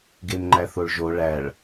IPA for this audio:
ɡ e m ŋ͡ǃ æ θ o ɭ ʒ o ɭ æ ɭ

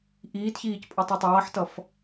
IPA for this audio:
ʔ iː t ç iː c pʼ ʌ tˤ o tˤ ʌː ħ t ʌ f

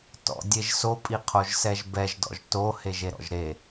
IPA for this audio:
t ɔ̰ dʲ e ʒ s o pʼ i qʰ o ʒ s ɛ ʒ b ɛ ʒ d ɔ̰ ʒ t o h e ʒ e ɾ ɔ̰ ʒ ɾ e

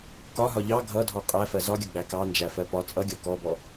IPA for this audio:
k ɒ ɦ ɒ ʎ ɑ ɡʱ ʌ dʱ ɔ qʼ æ f ɜ z ɒ ɡʲ ʌ ɡ͡b æ k ɑ n d͡ʒ æ f ɜ p ɒ t͡sʼ ʌ ɡʲ ɔ k ɔ b ɔ

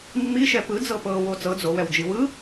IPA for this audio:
mː i ʃ ɛ p ɯ d͡z ɤ p ɤ w o t͡s ɤ d͡z o w ɛ w d͡ʒ i w ɯ

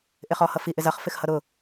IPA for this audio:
ʔ ɪ χ ɔ h ʌ f i ʔ ɪ z ʌ χ f ɪ x h ʌ ɾ ʊ

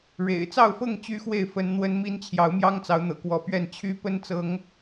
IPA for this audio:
ɻ ḛ˨˩ ɪ̯ t͡s ɑ˥˨ ʊ̯ f ɤ˥˨ ŋ t͡ɕ y˦ x w e˥˨ ɪ̯ f ə˦ n n̪ w ə˦ n m i˦ n t͡ɕʰ j ɑ˨˦ ʊ̯ m j ɑ˦ ŋ t͡s ɑ˨˦ ʊ̯ n̪ ɤ̰˨˩ k w ɔ˨˦ p ɥ ɛ˥˨ n t͡ɕʰ y˦ p ə˦ n t͡s ɤ˨˦ ŋ

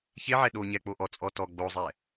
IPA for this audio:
ç e ʕ ɛ ɗ o ɲ ɛ k͡p o ʔ ɔ t͡sʼ ɔ t ɔ ɡ͡b o zˤ ɛ

